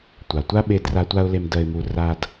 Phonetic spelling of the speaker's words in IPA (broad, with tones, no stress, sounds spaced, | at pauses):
tʷ a˨ tʷ a˦ ɓ e˧ d r a˧ tʷ a˧ ʊ̯ l e˨ m d ɜ˨ ɪ̯ m u˨ r a˧ d